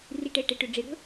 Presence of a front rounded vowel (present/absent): present